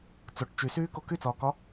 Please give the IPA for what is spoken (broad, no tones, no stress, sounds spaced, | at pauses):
t͡s o ʈ t͡ʃ y s yː k o k y t͡s ɒː k ɒ